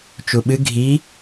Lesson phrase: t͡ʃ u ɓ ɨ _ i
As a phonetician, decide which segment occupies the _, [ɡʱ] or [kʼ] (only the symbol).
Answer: ɡʱ